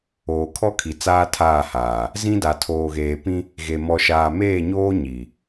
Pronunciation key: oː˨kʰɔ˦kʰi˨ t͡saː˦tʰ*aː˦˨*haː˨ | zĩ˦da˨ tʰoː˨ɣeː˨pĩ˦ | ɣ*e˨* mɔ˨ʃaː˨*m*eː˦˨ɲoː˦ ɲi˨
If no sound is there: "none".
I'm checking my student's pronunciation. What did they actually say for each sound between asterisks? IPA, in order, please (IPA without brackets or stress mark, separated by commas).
aː˦˨, e˨, m